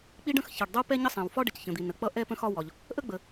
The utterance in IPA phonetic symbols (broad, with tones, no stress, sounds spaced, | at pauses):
k͡p i˥ ɖ ə̃˥ x ç ʌ˩ ɖ dˤ u˥ p ɛ˥ ɲ ə˥ sˤ ɛ̃˩ w f ɒ˥ ɖ ə˩ c ç ə̃˩ d̪ i˩ n ə˩ k͡p ʌ˥ ʔ ɛ˥ p ə̃˥ x ɒ˥ w ɒ˩ ʎ | ʔ ə˥ ɡ͡b ə˩